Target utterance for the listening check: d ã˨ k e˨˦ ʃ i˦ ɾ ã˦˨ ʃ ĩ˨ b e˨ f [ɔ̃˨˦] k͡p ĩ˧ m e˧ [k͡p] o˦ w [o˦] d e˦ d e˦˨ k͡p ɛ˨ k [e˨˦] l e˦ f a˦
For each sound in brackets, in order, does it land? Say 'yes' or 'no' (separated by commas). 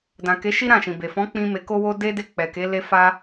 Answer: yes, no, yes, yes